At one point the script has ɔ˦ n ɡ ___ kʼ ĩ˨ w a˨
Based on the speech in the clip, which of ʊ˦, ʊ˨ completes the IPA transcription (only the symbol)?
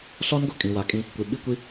ʊ˨